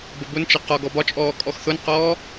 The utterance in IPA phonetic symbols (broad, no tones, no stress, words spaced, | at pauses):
bəbʊnt͡ʃə qɒ ɡɔbɒt͡ʃʼɔː kʼɔxθʊnqɔː